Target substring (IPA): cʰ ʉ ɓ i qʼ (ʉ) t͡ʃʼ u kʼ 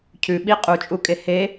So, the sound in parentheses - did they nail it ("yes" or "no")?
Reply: no